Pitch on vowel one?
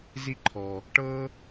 high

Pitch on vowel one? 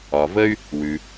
low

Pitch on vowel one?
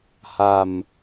low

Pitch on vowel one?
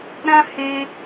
high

